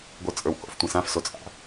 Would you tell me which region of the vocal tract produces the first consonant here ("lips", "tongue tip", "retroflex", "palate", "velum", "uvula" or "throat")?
velum